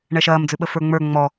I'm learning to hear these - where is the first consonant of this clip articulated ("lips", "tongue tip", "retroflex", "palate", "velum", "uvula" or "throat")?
retroflex